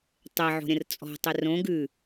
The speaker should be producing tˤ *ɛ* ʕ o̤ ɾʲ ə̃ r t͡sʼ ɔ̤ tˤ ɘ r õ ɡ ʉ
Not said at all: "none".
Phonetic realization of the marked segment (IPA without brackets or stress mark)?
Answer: ɛ